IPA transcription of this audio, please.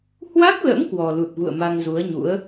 h w a˦˥ k̚ l ə̰˧˥ m k w ɔ˨˩ l u˨˩ t̚ v ṵ˧˨ ə̯ m a˧ ŋ z u˨˦ ə̯ ɲ ṵ˧˥ ə̯

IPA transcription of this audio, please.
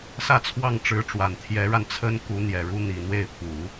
s ä˥˧ t͡sʰ w ɑ˥˩ ŋ ʈ͡ʂ ɻ̩˧˥ ʈ͡ʂ w a˨˩ n t̪ʰ j ɛ˧˥ ɻ a˧ n t͡sʰ ə˥ n k u˧˥ n̪ j ɛ˨˩ ɻ u˥ n̪ i˨˩ n̪ w e˥˩ ɪ̯ pʰ u˨˩˦

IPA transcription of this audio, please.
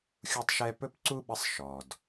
xʲ u˥ tˤ ʃ ɛ˥ p ɵ˥ p ǀ u˥ ɓ ə˦ sˤ ʃ ɔ˨ d

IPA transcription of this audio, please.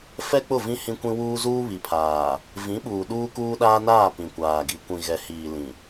f ɛ˦ k͡p ʊ˦˨ v ĩ˦ h ĩ˦ kʷ ĩ˦ w uː˦ z uː˦ β i˨ pʰ aː˨ | v ĩ˨˦ ɓ uː˨ ɗ uː˦ k uː˦ ɗ aː˦ n aː˦˨ p ĩ˨ kʷ aː˨ ɡ i˨ kʷ ĩ˨ ɣ ɛ˨ h iː˨ l ĩ˨

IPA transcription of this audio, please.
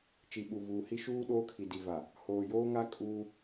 t͡ʃ i˨ ɓ u˨ v uː˨ h i˦ ʃ uː˦ ɗ oː˦ kʰ i˨ d i˨ v a˨ | h oː˨ j oː˦ ŋ a˦ kʼ uː˦

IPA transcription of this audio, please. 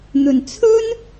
n̪ ɵ˨˩ n t͡sʰ ɵ˥ n

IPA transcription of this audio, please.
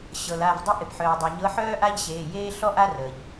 ɕ ɤ˩ l a˩˧˩ v dˤ ɪ˥ ʔ ɪ˩ p ħ œː˩ dˤ ɤ˩ ɲ ɤ˧˥ ħ œː˥ ʔ a˥ ʎ ɕ eː˩˧˩ j eː˥ ɬ ɔ˥ ʔ a˥ r əː˩ ʎ

